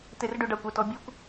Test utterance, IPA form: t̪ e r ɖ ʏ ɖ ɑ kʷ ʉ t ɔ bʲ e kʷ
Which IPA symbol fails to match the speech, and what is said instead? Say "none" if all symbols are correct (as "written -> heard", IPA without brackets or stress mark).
ʉ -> ə